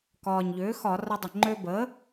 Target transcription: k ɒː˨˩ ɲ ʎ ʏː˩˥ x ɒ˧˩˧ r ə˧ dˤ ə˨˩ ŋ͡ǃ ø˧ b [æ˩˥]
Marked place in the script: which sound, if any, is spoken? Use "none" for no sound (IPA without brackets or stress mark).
ə˩˥